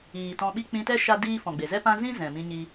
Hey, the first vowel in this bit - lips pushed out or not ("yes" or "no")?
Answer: no